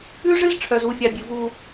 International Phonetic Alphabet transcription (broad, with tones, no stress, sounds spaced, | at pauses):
ʉ˦ ʐ ɨ˦ z ʈ͡ʂʰ œ˨ z u˨ fʲ a˨ bʲ ɨ˨ v u˦